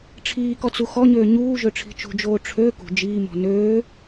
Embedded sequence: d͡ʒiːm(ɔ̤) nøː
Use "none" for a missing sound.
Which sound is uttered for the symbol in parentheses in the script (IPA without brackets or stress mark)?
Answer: ɔ̤